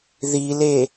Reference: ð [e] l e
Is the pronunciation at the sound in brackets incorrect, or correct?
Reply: incorrect: i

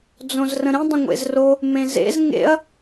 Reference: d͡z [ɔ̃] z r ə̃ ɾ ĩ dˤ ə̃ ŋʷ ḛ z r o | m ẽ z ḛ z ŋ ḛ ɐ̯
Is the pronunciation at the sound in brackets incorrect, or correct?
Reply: incorrect: õ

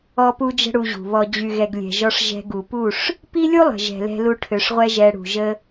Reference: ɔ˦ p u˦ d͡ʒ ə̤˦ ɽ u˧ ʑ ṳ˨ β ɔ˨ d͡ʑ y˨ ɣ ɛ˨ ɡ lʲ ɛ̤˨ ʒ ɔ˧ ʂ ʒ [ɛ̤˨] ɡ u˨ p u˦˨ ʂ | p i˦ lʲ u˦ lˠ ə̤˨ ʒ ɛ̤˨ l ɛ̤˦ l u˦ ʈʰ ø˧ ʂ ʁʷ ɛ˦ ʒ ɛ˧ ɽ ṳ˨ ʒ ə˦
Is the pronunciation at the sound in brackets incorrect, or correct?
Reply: incorrect: ɛ̤˧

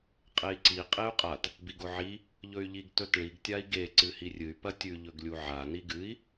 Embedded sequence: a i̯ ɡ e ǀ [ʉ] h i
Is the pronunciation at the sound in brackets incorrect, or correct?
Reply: incorrect: ɨ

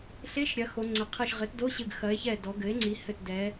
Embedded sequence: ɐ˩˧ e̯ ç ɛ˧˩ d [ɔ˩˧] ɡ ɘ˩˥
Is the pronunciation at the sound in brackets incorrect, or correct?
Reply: correct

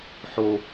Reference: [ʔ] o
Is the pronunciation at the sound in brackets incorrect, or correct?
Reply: incorrect: ħ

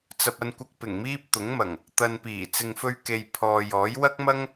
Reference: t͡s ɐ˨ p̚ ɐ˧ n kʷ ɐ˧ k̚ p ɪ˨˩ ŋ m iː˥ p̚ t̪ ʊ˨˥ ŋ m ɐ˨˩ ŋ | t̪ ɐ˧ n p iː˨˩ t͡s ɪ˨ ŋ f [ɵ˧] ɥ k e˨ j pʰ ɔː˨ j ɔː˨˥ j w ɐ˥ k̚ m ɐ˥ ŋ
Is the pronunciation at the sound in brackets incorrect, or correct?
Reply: correct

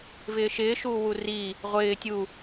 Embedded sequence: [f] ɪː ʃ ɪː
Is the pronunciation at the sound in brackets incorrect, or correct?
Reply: incorrect: v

